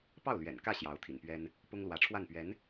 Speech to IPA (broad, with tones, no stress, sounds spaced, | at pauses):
p ɑ˥˩ ʊ̯ l ɥ ɛ̰˨˩ n k ä˥˩ ɕ j ɑ˧˥ ʊ̯ t̪ʰ ḭ˨˩ n p ɥ ɛ˥ n | p ʊ˥ ŋ l w ä˧˥ ʈ͡ʂʰ w a˥˩ n p ɥ ɛ˧˥ n